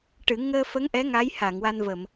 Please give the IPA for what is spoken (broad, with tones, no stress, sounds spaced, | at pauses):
ʈ ɨ˨˩˦ ŋ əː˧ f ə˧˥ ŋ ʔ ɛ˧˥ ŋ a˧˥ j h a˨˩˨ ŋ w a˧ n v ə˨˩˨ m